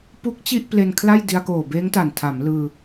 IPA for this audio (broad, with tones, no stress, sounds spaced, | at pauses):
p u˦˥ k̚ t͡ɕ i˥˩ ʔ p l e˧ n kʰ l a˥˩ j d i˧ a̯ k oː˨˩ b eː˦˥ ŋ t a˨˩ n tʰ a˩˦ m l ɯː˧